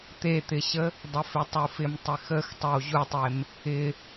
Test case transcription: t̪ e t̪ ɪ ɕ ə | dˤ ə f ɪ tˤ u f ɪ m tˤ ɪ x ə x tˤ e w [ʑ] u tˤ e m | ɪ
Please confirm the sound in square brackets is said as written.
yes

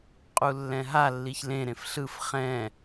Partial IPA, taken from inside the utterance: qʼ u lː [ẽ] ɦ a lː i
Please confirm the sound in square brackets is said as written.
no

